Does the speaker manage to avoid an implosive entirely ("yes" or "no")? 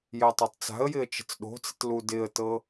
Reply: no